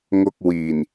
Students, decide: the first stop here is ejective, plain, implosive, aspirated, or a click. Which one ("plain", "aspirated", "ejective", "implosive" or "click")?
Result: plain